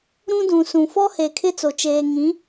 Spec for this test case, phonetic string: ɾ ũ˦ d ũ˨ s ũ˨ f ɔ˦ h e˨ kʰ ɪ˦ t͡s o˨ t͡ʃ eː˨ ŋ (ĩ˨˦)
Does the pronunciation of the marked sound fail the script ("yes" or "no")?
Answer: no